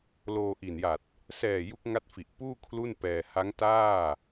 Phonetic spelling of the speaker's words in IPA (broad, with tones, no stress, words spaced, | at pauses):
loː˧ʔi˨˩nja˨˩t̚ | sɛː˨˩ ju˦˥k̚ŋa˦˥t̚fi˨˩ʔpuː˥˩ kʰlu˥˩npɛː˧ ha˦˥ŋtaː˥˩